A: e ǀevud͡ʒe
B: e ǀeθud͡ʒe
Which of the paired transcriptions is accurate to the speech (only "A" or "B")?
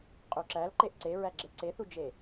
B